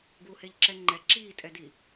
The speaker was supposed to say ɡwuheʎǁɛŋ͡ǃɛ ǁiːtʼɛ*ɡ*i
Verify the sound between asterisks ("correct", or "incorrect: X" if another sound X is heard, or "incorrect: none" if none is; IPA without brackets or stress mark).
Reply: incorrect: d